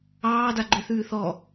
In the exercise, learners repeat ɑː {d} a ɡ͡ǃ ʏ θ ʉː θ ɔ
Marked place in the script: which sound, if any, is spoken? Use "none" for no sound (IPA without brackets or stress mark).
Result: d